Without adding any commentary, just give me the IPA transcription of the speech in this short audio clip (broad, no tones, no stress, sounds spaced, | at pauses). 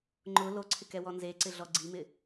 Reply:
ŋ͡ǃ ʊ l o ǀʰ ɪ k ɛ w ɔ n z e ǀ ɪ ɮ ɔ ɡ͡ǀ i m ɪ